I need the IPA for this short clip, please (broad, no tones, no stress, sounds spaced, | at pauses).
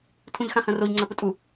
tʰ ũ ʎ x ã h ɐ̃ r o ʎ ŋ͡ǀ ɐ p ʊ tʼ u